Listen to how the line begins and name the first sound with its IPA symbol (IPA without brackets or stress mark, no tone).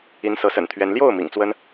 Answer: i